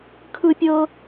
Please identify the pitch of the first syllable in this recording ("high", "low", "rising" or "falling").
high